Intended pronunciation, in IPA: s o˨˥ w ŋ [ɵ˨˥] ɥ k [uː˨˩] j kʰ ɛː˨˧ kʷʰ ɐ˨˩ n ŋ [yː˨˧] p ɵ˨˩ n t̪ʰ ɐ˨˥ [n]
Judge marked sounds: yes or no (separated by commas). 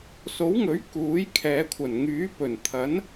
yes, no, no, yes